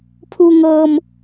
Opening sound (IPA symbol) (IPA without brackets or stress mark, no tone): pʰ